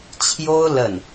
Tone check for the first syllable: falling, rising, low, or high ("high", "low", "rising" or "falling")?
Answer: high